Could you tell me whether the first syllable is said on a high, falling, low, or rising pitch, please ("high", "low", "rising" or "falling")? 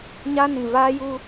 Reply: high